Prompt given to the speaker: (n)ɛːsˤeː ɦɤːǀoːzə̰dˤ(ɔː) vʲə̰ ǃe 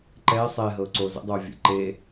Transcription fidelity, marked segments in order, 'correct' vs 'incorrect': incorrect: ǃ, incorrect: oː

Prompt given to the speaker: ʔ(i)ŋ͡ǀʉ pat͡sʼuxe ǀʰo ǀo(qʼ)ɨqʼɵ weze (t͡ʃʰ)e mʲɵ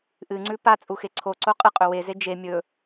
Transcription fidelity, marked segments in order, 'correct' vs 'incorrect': incorrect: ɨ, correct, incorrect: d͡ʒ

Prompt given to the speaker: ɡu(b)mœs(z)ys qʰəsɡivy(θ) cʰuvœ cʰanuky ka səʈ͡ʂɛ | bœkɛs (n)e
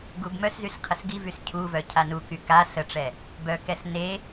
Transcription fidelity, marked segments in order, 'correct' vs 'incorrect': correct, correct, incorrect: s, correct

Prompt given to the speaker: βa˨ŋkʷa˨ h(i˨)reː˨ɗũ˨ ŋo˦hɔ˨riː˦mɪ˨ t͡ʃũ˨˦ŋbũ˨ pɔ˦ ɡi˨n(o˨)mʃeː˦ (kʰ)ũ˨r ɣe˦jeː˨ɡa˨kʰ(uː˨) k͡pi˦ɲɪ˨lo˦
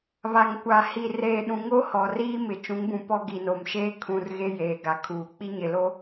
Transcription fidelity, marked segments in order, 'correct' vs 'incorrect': correct, correct, correct, correct

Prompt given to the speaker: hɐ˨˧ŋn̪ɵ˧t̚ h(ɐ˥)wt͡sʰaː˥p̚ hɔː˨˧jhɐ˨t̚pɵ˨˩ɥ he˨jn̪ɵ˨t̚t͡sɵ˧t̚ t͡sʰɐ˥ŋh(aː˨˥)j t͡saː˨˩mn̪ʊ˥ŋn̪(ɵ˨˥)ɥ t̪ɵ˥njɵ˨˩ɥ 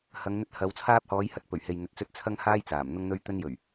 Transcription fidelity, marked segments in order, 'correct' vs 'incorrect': incorrect: ɐ˨˧, incorrect: aː˥, incorrect: ɵ˥

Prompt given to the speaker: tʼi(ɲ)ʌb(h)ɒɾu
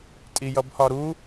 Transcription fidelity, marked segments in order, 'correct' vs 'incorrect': incorrect: j, correct

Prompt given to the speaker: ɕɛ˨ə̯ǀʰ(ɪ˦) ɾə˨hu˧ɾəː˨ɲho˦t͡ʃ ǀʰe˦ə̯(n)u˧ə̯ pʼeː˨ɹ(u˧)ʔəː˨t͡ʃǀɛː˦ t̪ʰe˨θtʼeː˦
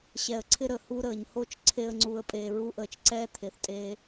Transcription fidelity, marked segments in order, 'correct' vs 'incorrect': correct, incorrect: ŋ͡ǀ, correct

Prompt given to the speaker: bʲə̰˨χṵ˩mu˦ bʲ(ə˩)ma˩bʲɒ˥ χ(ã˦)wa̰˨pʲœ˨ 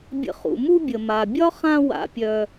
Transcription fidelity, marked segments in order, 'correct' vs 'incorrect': correct, correct

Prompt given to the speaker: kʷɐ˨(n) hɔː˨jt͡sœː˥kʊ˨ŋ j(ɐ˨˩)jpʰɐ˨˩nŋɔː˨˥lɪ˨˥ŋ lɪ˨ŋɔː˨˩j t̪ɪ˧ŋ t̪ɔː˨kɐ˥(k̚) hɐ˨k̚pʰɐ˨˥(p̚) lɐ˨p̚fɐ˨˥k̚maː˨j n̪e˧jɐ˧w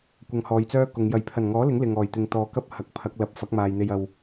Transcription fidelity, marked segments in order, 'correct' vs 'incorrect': incorrect: ŋ, correct, incorrect: p̚, incorrect: k̚

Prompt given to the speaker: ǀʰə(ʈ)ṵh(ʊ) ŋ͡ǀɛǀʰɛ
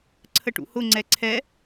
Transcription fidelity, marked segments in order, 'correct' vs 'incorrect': correct, correct

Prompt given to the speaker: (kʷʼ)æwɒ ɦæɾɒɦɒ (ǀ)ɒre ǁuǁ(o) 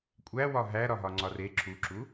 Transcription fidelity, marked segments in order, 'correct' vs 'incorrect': correct, incorrect: ŋ͡ǀ, incorrect: u

